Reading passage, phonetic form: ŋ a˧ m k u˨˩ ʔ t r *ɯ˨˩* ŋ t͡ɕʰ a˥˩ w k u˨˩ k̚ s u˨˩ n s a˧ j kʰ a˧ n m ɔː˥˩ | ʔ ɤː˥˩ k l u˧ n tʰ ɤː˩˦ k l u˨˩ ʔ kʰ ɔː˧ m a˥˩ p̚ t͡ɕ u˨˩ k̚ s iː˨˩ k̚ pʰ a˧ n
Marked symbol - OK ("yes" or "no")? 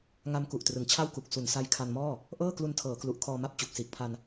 yes